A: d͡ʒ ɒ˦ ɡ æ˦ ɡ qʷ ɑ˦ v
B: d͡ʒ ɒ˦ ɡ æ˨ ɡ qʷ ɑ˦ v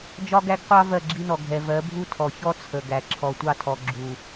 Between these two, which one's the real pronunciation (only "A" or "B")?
A